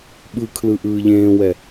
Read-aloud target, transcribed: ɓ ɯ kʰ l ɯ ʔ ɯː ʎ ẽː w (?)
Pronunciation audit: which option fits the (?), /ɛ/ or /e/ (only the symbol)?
ɛ